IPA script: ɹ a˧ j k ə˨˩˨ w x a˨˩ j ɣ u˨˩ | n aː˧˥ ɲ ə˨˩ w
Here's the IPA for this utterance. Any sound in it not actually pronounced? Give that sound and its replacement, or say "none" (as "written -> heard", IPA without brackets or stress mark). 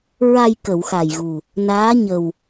none